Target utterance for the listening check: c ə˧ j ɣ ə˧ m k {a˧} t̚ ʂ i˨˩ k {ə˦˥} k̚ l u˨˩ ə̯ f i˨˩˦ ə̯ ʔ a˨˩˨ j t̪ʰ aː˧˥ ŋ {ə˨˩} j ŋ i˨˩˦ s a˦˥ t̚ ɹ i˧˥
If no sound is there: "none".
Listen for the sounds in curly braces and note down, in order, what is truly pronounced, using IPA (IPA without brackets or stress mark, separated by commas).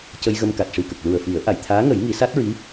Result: a˨˩, ə˨˩, ə˨˩˦